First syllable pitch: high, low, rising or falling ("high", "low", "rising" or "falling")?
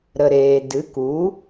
low